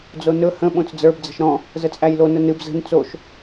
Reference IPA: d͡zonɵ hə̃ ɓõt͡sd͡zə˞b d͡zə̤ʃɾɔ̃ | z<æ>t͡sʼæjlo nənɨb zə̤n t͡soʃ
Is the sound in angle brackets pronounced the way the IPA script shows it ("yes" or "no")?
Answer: no